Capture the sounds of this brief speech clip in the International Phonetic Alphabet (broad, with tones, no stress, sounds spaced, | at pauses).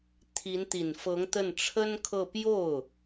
t̪ʰ i˧˥ n t̪ i˨˩ n f ɤ˧˥ ŋ t̪ ə˥˩ n ʈ͡ʂʰ ə˥ n kʰ ɤ˥˧ p j o˥˩ ʊ̯